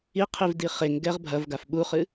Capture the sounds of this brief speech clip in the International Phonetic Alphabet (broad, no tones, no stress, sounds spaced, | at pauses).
i qʰ i v d i χ e ŋ ɡ ɛ ʁ bʱ ɐ v ɡ a f ɓ u χ ɨ